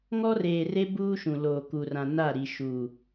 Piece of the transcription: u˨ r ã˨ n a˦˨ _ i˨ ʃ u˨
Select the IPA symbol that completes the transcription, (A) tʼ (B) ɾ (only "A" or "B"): B